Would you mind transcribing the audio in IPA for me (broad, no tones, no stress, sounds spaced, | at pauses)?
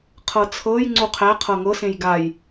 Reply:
qʰ ɤ t͡sʰ ɤ j ŋ͡ǀ u qʰ æ qʰ ɤ ŋ ɤ s ẽ j ɡ a j